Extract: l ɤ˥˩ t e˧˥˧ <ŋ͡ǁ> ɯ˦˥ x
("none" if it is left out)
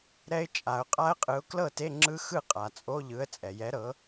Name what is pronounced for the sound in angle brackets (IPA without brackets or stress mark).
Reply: ŋ͡ǁ